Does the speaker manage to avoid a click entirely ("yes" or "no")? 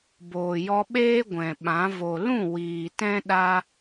yes